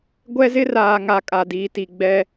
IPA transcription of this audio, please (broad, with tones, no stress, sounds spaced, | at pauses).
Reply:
ɡʷ ɛ˦ z ɪ˦ r aː˨ ŋ a˦ kʼ a˨ d iː˨ t i˨ ɡ͡b ɛ˦